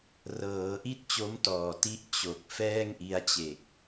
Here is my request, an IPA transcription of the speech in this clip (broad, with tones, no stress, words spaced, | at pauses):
rɤː˩˦ʔi˥˩t̚ t͡ɕo˦˥mtɔː˨˩ti˦˥ʔ t͡ɕo˨˩k̚ fɛː˥˩ŋʔi˦˥a̯t͡ɕe˨˩k̚